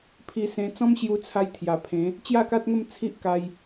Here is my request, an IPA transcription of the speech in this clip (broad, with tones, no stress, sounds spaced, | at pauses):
pʰ i˧ s ẽ˧ t͡s ɔ̃˦ m ɕ j u˧ t͡sʰ a˧ j t̪ʰ j a˨˩ pʰ ẽ˨˦ | t͡ɕ j a˥˧ k a˦ t̚ ŋ ə˥˧ m t͡sʰ i˦ ʔ k a˧ j